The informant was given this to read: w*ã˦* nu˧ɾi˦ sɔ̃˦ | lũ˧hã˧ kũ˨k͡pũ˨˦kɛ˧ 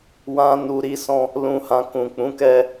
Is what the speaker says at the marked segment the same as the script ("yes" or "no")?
yes